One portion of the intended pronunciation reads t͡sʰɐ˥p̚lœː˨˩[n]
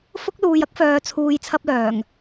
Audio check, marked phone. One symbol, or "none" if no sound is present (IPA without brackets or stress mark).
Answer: ŋ